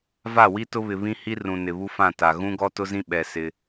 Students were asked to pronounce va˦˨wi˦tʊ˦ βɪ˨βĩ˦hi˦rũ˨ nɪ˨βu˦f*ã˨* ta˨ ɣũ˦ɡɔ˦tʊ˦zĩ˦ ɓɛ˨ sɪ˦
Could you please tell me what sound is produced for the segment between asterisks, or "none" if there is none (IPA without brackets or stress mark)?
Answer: ã˦˨